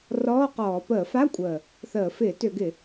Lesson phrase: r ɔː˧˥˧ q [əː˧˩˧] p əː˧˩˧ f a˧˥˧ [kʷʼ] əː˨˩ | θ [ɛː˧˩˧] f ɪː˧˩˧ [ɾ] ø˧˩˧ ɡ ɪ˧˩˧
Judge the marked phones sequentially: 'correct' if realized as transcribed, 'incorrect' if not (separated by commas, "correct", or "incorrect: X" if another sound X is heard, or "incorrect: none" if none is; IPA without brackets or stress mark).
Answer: incorrect: ɔː˧˩˧, correct, incorrect: əː˧˩˧, incorrect: t